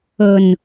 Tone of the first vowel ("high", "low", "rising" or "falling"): low